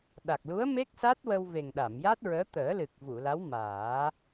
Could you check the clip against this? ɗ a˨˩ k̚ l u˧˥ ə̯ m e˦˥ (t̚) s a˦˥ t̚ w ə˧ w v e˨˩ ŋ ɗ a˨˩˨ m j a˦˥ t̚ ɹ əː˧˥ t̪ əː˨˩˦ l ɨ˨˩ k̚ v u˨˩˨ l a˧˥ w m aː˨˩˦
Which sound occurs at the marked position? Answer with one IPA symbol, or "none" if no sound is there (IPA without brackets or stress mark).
k̚